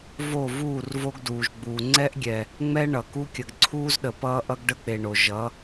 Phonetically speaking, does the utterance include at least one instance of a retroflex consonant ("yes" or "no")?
yes